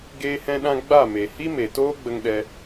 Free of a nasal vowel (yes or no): no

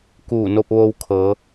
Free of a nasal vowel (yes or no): yes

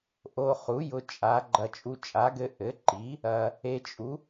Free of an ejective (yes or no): no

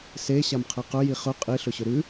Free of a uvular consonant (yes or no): no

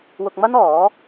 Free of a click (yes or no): yes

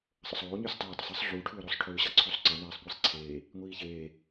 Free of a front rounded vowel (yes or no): no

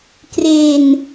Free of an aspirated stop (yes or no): yes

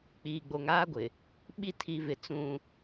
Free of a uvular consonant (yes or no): yes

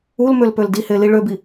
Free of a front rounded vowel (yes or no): no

